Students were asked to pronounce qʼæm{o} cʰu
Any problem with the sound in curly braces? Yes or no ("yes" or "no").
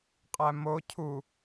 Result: no